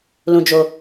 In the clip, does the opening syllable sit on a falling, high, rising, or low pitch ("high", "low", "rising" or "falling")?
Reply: low